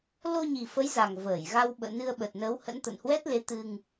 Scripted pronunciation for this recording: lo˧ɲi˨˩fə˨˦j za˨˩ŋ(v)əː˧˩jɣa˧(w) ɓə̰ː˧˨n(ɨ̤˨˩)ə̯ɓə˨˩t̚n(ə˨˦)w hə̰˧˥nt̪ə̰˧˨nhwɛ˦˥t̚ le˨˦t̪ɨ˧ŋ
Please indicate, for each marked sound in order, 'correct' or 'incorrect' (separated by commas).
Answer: correct, correct, incorrect, correct